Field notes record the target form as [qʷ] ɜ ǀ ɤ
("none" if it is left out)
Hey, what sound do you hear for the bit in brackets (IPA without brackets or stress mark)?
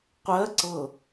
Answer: qʷ